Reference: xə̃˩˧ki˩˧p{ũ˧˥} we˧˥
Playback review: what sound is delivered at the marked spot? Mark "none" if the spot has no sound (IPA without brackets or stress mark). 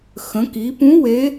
ũ˧˥